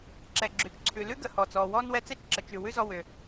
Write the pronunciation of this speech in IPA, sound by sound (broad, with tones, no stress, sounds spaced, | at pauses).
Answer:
ǁ ɛ˩ ɡ͡ǁ ʉ˩ t͡ʃ ǀʰ ʉ˩ l ʉ˥ ɡ ə˩ h ɔ˩ t͡s ɔː˩ w ɔː˥ n w ɛ˧ t͡s ɛ˥ t͡ʃ ǁ ə˩ t͡ʃ ʉ˩ w ʉ˥ z ɔ˧ w ʏː˩